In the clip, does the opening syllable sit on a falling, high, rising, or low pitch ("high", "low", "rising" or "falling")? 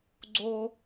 high